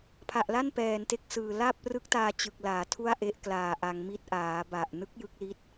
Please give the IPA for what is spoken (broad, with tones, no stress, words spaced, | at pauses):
pʰa˨˩ʔla˥˩n pɛː˨˩n te˥˩k̚sɯː˨˩ laː˥˩p̚rɯ˦˥k̚taː˧ t͡ɕɯ˨˩k̚laː˩˦ tʰu˥˩a̯ʔe˦˥ʔklaː˨˩ ʔa˧ŋmi˥˩t̚ ʔaː˩˦ba˨˩ʔ nɯ˦˥k̚ jɯ˦˥k̚li˦˥t̚